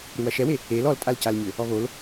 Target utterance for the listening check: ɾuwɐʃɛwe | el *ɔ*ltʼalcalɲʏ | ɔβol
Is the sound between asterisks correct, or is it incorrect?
correct